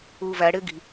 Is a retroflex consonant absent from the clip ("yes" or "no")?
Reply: no